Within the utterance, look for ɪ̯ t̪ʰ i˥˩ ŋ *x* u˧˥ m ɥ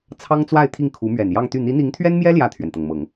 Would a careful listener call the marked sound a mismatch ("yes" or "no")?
yes